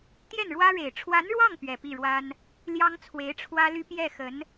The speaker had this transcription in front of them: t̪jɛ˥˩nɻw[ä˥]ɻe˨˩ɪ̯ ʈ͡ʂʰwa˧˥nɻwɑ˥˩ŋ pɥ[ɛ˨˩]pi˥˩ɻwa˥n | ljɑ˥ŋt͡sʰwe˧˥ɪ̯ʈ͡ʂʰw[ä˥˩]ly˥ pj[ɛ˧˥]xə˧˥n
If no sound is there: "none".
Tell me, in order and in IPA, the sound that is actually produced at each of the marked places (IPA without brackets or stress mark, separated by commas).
ä˥, ɛ˨˩, ä˥, ɛ˥˩